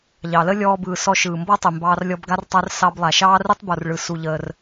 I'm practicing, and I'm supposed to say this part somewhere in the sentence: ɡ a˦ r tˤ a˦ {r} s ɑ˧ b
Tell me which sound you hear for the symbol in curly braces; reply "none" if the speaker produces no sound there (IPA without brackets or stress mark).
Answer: r